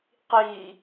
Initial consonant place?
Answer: uvular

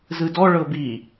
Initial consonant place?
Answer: alveolar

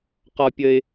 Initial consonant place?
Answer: uvular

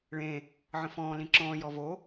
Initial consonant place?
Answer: retroflex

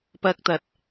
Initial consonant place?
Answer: labial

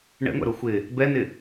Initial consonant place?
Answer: retroflex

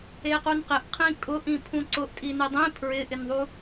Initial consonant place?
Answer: uvular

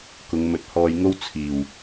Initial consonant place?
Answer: velar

